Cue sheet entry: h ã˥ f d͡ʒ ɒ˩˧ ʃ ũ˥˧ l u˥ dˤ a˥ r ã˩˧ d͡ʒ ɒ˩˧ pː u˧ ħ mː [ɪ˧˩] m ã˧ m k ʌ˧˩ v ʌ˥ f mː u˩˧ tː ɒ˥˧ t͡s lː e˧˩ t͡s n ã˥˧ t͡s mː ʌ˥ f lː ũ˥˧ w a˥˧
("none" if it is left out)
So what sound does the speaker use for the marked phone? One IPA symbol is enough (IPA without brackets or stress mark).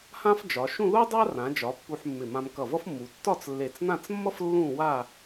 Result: ɪ˧˩